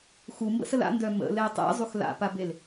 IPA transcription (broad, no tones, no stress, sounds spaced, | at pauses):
x u m b ə̰ s ə l a̰ n d œ m ə̰ l ɛ tˤ ḛ zˤ u x l a̰ p a b e l